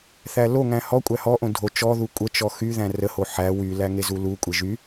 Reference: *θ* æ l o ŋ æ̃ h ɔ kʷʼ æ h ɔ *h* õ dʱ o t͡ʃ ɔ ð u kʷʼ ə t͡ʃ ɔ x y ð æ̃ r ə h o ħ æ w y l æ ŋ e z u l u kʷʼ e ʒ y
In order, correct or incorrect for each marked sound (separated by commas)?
correct, incorrect